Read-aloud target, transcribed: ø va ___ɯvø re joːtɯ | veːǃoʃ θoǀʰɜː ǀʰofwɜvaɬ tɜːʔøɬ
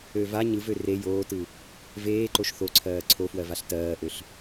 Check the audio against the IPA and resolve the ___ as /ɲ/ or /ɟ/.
ɲ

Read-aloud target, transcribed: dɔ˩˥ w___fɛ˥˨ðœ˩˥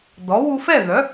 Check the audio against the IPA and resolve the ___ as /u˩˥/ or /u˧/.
u˧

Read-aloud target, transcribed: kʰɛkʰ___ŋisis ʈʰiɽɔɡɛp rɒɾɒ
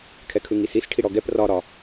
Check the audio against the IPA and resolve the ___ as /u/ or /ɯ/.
ɯ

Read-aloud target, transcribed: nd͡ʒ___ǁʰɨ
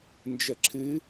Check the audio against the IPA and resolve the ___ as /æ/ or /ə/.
ə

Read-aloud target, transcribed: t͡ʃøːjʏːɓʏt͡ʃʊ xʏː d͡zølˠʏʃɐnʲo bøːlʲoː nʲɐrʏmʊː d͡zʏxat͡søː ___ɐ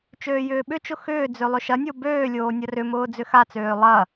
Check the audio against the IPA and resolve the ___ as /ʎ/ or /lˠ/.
lˠ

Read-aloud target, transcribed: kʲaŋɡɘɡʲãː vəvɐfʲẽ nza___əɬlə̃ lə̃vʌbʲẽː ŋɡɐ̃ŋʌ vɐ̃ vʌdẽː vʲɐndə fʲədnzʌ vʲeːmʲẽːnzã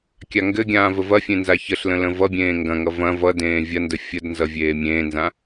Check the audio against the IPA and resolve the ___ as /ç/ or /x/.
ç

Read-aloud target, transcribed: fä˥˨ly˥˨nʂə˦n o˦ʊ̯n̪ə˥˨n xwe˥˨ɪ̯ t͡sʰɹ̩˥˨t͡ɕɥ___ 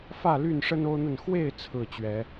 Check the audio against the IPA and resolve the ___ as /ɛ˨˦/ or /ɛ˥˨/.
ɛ˨˦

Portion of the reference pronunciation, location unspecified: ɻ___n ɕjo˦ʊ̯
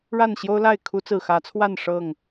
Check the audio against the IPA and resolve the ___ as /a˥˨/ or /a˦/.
a˥˨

